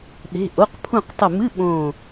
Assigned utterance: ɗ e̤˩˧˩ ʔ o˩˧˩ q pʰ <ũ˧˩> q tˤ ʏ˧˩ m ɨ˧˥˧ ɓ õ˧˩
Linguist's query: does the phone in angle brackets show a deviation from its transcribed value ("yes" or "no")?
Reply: no